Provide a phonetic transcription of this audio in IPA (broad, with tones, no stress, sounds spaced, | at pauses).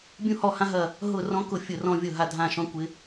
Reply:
bʲ ũ˦ h ɔ˦˨ h ã˦ ɦ ɐ˦˨ | ɦ ʊ˦˨ r ɔ̃˦ k ʊ˦˨ fʲ ʊ˦˨ r ɔ̃˦ vʲ ʊ˦˨ ɦ a˦˨ dʱ ã˦˨ ʃ ɔ̃˦ kʷ ɪ˦